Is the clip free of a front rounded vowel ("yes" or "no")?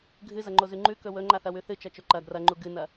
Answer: yes